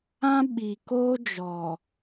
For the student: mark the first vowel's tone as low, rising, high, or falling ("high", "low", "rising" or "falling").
high